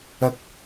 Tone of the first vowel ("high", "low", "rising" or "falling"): high